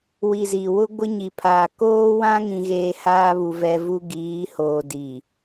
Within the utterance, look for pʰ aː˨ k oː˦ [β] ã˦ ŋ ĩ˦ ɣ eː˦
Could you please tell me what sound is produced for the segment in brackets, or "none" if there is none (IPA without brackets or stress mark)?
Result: w